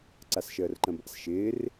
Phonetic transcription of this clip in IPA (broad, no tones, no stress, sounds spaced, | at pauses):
ǀ a s ʃ əː r ǃ ə̃ b a̰ s ʃ ɪː r